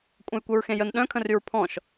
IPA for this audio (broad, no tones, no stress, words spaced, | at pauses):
kʷʼə̃jkʷœɹxẽjən ɗœ̃kʰə̃ryɹ pʰɔ̃ʃ